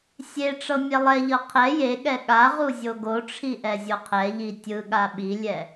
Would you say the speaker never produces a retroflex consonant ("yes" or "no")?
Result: no